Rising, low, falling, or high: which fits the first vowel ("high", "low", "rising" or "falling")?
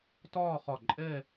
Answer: falling